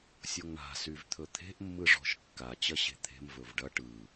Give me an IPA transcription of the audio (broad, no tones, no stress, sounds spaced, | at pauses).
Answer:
sʲ o ŋ ɳ a̤ s y v t̪ʰ ɵ t̪ʰ e̤ ʔ mː ɯ ʐ ɔ̤ ʃ kː a t͡ɕ ɐ ɕ e̤ t̪ʰ e̤ m v ɵ v ɖ ɐ ʈ ɯ